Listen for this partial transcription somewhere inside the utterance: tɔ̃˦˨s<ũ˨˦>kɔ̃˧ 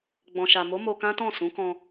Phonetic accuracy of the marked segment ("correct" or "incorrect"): correct